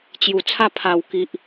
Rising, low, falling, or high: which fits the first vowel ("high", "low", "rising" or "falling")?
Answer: low